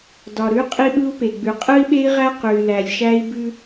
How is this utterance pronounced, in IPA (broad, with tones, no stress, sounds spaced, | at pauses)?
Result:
d ɒ˨ ɾ ʉ˦ qʼ i˦ ɓ ɯ˦ u̯ p e˨ ɡ͡b ʉ˨ qʼ ɯ˦ i̯ ɓ e˦ i̯ ʁ æ˦ q ʉ˨ y̯ l æ˨ lʲ ʃ æ˦ i̯ b ʉ˦